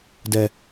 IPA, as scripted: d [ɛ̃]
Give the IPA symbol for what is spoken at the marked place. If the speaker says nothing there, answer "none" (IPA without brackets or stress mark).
ɛ